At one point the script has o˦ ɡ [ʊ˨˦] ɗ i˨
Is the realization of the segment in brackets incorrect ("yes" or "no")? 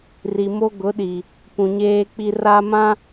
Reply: no